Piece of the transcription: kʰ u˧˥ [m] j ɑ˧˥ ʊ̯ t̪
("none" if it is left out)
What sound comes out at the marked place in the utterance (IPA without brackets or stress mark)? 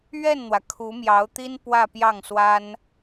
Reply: m